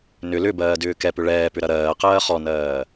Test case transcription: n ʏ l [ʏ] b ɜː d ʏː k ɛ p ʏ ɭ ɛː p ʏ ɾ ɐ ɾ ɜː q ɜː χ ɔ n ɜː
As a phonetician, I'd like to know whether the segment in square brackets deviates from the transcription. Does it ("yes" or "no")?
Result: no